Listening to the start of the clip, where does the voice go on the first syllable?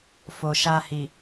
low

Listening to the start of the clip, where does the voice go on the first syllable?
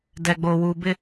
low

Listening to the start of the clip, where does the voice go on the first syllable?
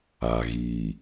low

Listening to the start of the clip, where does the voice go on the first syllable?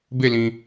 falling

